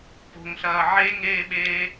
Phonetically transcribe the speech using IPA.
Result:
po̤ŋɬɐː ʕeŋeːɓeː

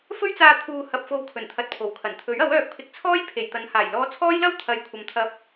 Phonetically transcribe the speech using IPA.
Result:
fɵ˥ɥt͡saː˧t̪ʰuː˨ hɐ˨p̚fo˨w kʰɵ˨˩n t̪ʰɐ˧t̚pʰo˨˩wkʰɐ˨˩n t̪ʰɵ˨˥ɥɐ˨˥wœː˧k̚pʰɪ˧k̚ t͡sʰɔː˥jpʰe˨˩jt̪ɐ˨˧nhaː˨˩j lɔː˧t͡sʰɔː˥jlɐ˥w t̪ʰɐ˨jkʷʰɐ˨mt̪ʰɐ˧p̚

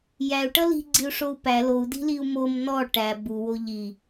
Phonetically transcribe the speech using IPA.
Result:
jæu̯ʈʌ li̤ɡ͡ǀiu̯ʂou̯ pæ lou̯di̤liu̯ mom nɔ ʈæ buwo ʎi

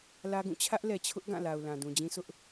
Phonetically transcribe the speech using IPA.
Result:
lä˦ɡũ˦˨ t͡ɕʰä˦ʔlɛ˨t͡ɕʰʊ˦ʔ ɡã˦˨la˨ʊ̯ lã˨ dũ˨d͡ʑĩ˦ sʊ˦ʔ

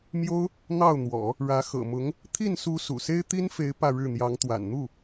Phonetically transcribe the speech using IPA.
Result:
mjo˥ʊ̯ | n̪ɑ˥˩ʊ̯n̪wɔ̰˨˩˦ | ɻä˧˥ xɤ̰˨˩mʊ˧˥ŋ | t̪ʰi˥˩nsu˧˥ sṵ˨˩ se˥ɪ̯t̪i˥nfe˧˥ɪ̯ pä˥˧ɻɻ̩˥˩n̪jɑ˧˥ŋ t̪wa̰˨˩nn̪u˥˩

